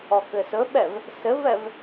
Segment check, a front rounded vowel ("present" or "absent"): absent